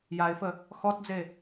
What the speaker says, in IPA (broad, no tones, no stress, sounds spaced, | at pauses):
j a ɪ̯ f ə | x ɔ t d͡z e